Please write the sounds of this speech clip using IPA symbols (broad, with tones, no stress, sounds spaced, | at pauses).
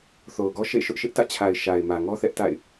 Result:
θ o˨ ʊ̯ ɡ ɔ˦ ʃ ḛ˦˨ ʃ ʊ˦ ʔ ʃ ɪ˦ ʔ t ä̰˦˨ t͡ɕʰ a˨ ɪ̯ ʃ a˨ ɪ̯ m ä˨ ŋ ɔ˦ θ ɛ˦ ʔ t a̰˦˨ ɪ̯